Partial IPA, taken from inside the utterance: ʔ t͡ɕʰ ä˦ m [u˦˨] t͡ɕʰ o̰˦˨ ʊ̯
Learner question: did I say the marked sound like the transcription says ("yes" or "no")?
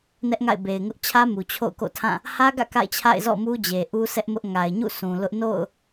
no